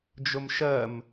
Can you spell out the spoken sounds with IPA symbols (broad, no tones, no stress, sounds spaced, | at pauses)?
d͡ʒ ʊ m ʃ ɜ m